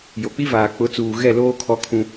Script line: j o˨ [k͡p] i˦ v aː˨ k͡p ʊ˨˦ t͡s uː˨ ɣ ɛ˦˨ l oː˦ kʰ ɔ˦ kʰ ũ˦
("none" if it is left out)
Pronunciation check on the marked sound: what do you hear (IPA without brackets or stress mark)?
k͡p